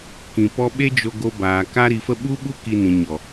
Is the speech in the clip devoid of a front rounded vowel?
yes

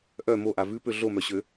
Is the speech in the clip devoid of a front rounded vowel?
no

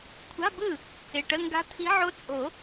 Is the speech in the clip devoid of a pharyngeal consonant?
no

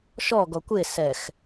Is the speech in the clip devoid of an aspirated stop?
yes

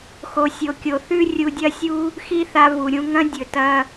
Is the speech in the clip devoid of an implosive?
yes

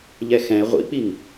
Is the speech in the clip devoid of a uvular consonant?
no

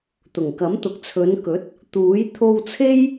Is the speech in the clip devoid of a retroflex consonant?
yes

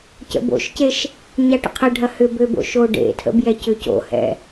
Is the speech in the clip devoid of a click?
yes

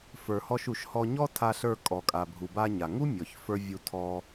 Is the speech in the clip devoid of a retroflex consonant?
yes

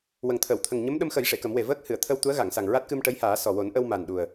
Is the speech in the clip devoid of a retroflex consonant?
no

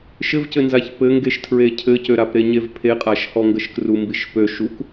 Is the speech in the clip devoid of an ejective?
no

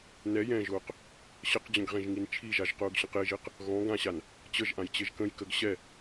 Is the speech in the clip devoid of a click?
yes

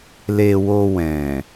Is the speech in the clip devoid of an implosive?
yes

